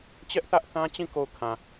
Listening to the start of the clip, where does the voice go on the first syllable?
high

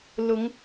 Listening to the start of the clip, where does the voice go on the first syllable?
rising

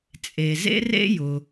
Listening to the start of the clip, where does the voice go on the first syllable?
low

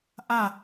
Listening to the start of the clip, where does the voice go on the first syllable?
falling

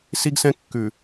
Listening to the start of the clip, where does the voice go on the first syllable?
high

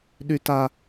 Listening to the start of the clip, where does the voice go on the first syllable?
high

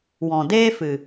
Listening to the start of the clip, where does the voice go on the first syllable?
low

